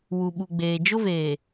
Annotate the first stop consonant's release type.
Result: implosive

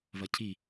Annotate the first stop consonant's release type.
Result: aspirated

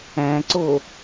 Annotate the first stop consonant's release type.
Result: click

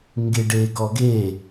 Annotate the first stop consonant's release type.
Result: plain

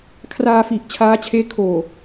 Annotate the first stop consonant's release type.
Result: aspirated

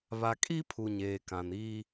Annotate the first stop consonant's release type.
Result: ejective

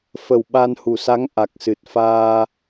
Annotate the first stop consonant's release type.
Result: implosive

